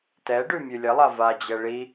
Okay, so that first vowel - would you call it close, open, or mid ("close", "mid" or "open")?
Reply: mid